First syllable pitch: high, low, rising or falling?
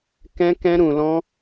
high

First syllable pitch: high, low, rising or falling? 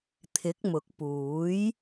rising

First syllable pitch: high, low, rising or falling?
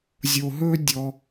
low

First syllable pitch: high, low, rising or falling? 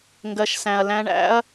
low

